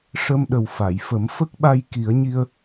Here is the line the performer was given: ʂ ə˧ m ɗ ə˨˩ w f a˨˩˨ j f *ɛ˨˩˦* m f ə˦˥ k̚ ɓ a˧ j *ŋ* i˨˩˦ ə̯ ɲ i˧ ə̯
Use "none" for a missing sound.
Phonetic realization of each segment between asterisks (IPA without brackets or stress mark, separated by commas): ə˨˩˦, k